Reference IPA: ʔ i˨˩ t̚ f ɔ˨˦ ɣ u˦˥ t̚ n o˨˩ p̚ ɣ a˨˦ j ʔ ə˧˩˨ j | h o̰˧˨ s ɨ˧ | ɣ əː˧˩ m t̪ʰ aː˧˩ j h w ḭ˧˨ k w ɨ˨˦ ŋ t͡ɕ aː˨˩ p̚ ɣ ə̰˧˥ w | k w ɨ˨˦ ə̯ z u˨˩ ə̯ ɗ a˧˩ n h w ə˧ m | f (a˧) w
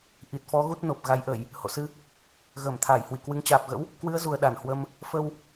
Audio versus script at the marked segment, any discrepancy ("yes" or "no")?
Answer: yes